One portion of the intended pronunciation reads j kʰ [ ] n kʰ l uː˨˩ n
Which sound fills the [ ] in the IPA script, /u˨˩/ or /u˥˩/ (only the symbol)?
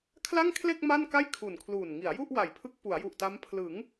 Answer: u˨˩